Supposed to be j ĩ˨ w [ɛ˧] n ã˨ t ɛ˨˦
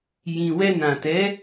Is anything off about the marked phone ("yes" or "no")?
no